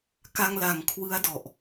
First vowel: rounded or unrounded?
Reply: unrounded